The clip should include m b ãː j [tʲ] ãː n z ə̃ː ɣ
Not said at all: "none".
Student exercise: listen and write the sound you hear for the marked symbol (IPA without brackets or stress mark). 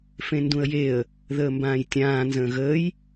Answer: tʲ